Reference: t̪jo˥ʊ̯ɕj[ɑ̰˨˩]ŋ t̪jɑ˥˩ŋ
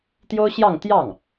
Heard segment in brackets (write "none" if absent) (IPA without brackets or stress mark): ɑ˥˧